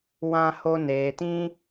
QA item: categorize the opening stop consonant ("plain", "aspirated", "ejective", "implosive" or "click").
plain